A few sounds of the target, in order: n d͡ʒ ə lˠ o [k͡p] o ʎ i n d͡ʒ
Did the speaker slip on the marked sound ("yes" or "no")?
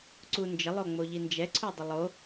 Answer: yes